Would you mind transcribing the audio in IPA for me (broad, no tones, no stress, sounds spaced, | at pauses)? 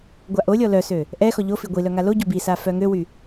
ɡʷ a ʔ o lʲ ɔ l œ s ø | ʔ ɛ x ɔ ʎ o f i ɡʷ i l œ ŋ a l o ɟ o b i s a f œ ŋ ø w y